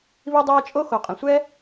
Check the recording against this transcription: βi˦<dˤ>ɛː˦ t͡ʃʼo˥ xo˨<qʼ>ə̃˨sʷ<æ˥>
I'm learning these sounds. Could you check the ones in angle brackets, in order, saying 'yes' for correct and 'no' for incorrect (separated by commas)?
yes, yes, no